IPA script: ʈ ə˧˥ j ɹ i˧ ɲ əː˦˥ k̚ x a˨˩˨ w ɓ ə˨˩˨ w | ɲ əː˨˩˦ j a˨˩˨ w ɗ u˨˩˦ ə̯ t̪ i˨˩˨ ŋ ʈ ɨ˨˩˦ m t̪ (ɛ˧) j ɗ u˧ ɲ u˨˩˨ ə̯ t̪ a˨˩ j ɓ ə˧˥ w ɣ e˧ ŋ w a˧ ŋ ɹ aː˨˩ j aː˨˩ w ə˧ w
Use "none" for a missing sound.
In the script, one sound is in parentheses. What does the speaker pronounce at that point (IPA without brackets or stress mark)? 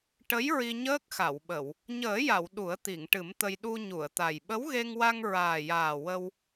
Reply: ə˧